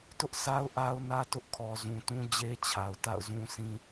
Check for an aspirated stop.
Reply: present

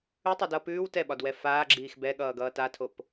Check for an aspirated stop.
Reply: present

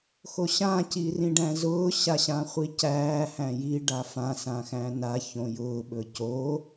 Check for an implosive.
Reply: present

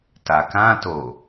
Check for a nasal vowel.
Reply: present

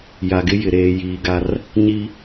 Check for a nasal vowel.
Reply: absent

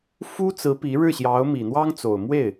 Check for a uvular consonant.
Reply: absent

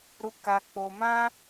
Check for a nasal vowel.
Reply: present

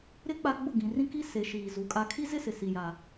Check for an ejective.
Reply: present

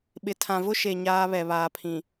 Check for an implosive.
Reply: present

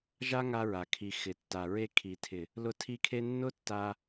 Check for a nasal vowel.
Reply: absent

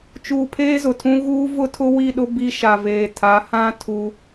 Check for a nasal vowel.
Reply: present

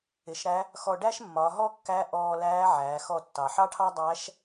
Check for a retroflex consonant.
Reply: present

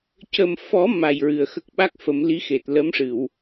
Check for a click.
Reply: absent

